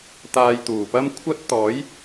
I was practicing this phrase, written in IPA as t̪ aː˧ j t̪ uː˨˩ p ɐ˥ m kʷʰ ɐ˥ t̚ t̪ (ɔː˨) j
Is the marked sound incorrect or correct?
incorrect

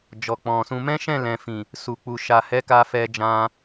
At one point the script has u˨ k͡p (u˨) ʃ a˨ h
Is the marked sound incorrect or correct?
correct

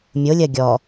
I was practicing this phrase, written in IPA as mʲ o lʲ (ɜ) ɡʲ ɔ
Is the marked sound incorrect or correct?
correct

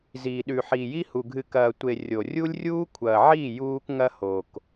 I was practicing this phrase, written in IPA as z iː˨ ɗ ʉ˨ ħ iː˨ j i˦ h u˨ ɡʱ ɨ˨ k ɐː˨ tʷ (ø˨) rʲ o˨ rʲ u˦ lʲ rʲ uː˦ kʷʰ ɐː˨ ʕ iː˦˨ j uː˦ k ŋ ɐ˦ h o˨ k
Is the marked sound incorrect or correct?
incorrect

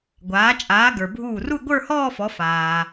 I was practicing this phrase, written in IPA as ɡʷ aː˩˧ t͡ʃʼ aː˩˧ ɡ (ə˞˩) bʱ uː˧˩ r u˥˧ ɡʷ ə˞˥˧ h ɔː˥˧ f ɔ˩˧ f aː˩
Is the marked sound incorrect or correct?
correct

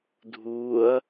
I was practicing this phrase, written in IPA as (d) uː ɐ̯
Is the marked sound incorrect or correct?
incorrect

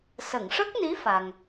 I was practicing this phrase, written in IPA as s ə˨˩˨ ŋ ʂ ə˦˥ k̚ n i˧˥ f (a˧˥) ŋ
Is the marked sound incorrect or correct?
incorrect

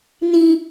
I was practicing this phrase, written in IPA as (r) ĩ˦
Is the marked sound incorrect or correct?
incorrect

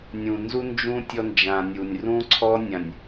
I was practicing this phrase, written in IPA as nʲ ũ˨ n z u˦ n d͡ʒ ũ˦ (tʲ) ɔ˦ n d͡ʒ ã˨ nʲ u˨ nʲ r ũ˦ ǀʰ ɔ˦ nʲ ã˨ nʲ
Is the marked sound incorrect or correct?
correct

